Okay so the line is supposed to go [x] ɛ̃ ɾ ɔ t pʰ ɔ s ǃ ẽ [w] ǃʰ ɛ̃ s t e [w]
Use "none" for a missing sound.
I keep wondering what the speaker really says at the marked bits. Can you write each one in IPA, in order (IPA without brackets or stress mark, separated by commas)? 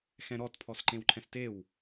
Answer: x, w, w